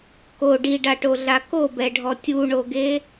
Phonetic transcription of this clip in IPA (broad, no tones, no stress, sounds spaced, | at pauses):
k o ɖ i ɖ a ʈ o ɮ a k o b ɛ ɖʱ ɔ tʲ u ɳ o ɡ e